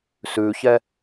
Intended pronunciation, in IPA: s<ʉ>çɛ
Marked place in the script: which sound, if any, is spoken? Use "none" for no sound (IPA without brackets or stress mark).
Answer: ʉ